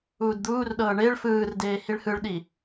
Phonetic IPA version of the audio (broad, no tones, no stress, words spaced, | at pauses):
uːdd̪uːrɗɤː ɳeɭ fɯːrdeː hiɭhɯɭɗi